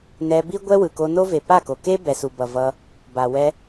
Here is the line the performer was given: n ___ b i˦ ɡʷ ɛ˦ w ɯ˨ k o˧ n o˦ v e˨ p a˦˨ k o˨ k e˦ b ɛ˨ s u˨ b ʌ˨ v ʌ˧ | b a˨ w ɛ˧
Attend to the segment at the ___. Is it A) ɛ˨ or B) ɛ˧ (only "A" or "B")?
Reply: B